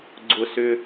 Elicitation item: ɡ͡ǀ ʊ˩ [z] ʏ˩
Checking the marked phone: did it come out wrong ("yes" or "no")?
yes